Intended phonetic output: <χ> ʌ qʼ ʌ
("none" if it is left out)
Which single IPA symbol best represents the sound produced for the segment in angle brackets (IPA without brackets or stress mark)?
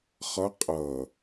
χ